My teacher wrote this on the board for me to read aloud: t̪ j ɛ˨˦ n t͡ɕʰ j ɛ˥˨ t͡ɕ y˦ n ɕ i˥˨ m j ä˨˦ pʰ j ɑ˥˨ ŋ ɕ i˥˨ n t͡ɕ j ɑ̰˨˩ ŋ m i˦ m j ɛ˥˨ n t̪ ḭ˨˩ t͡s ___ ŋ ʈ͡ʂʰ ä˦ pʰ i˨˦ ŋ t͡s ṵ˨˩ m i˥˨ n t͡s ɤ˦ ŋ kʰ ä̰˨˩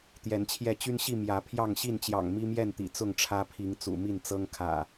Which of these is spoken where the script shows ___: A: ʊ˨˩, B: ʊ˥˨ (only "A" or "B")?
B